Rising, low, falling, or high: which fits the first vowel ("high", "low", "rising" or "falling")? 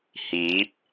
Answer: rising